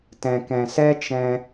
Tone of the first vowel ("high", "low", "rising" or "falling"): low